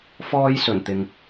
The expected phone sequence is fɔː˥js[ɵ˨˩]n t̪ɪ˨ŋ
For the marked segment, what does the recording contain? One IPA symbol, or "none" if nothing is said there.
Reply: ɵ˨˩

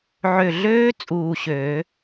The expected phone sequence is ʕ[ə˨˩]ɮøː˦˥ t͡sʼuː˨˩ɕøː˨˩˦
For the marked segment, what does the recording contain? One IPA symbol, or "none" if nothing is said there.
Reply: ø˨˩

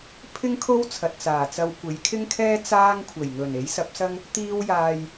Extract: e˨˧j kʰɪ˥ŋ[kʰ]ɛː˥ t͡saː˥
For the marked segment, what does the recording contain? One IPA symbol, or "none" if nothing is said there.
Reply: kʰ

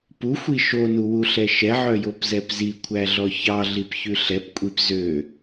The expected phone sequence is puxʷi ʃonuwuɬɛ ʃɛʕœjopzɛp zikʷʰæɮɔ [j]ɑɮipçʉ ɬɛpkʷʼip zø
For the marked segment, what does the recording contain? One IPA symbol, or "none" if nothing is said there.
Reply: ç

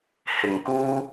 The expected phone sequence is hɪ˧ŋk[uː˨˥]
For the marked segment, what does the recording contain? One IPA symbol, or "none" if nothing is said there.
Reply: uː˥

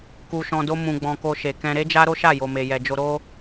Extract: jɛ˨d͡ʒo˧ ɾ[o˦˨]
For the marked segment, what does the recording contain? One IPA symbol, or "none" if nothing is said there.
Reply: o˦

